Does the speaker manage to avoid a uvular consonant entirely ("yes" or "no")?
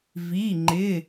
yes